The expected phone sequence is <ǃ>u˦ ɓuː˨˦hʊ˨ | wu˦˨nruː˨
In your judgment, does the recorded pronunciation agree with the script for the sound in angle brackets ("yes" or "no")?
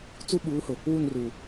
no